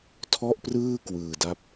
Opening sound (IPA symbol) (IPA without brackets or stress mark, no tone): tʰ